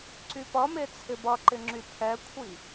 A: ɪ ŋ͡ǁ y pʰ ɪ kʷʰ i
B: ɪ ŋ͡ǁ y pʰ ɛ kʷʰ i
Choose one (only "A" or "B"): B